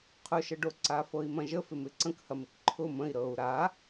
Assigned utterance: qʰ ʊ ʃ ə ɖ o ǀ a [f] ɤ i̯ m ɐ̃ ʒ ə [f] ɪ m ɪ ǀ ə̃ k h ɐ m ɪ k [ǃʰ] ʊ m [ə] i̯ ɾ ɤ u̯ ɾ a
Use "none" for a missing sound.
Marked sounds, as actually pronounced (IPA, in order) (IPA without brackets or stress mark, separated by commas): f, f, ǃʰ, ə̃